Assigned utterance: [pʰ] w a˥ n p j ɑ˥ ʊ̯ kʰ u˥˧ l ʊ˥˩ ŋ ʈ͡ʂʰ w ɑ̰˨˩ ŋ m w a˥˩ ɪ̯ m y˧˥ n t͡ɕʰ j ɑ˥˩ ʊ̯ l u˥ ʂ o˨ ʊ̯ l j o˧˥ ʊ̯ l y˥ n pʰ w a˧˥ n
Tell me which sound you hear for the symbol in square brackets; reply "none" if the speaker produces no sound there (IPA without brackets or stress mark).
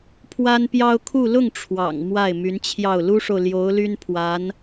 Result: pʰ